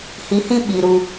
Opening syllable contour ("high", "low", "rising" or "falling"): low